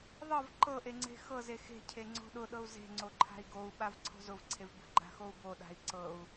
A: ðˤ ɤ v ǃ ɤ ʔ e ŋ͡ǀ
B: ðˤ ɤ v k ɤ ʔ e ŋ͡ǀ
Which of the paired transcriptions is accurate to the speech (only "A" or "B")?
A